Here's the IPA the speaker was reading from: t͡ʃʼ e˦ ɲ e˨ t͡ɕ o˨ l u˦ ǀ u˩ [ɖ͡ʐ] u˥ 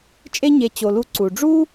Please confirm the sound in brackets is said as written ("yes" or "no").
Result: yes